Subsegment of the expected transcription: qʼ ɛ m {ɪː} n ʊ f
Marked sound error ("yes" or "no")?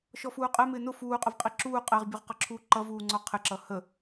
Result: no